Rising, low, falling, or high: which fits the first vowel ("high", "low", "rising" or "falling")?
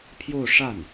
falling